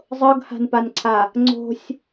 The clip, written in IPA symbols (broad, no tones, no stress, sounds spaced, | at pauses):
zˤ ɤ ɡ h a̤ n p a n ǀʰ a | ŋ͡ǀ o̤ sʲ